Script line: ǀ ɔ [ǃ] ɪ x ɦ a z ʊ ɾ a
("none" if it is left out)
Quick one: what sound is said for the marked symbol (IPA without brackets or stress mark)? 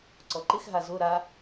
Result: ǃ